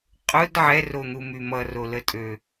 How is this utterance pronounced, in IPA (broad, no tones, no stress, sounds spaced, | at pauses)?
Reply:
qʼ ʊ d ʕ ɛ r o n̪ u m y m ʌ r o l ə tʼ ø